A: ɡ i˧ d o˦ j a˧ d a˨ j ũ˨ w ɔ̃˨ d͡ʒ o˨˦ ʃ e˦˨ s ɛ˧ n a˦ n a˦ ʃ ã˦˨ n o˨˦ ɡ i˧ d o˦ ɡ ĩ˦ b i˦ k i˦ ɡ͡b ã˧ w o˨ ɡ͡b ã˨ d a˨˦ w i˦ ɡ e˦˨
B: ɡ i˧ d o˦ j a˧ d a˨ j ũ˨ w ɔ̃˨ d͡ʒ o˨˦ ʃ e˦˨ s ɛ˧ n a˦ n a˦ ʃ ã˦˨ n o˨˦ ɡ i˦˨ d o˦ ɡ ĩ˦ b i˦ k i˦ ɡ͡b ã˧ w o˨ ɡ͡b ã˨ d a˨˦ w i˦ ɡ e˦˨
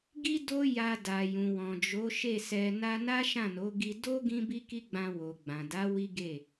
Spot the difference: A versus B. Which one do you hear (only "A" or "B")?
A